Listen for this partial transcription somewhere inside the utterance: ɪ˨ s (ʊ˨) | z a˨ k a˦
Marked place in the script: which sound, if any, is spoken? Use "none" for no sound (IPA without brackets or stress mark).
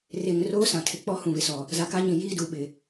ɔ˨